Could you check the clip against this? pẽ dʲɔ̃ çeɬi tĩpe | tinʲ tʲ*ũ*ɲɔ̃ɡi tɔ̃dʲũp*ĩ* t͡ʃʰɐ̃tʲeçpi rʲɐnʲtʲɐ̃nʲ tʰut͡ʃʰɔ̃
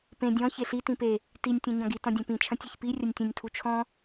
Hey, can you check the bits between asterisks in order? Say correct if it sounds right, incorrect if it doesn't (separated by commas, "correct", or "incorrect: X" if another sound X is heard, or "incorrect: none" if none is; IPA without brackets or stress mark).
correct, correct